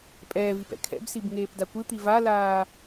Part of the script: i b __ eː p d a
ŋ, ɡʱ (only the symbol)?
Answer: ŋ